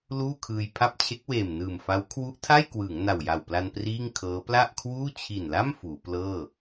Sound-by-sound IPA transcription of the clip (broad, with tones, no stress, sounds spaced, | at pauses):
l uː˥˩ kʰ ɯː˧ j pʰ a˥˩ p̚ t͡ɕʰ e˦˥ k̚ w eː˨˩ m n ɯː˨˩ m f a˦˥ w kʰ w u˦˥ ʔ tʰ a˥˩ j k w ɯː˩˦ ŋ n a˨˩ w j a˨˩ w p l a˧ n p r iː˥˩ ŋ kʰ ɤː˦˥ p l a˥˩ ʔ kʰ w uː˥˩ t͡ɕʰ i˨˩ n l a˥˩ m f uː˩˦ p l ɤː˥˩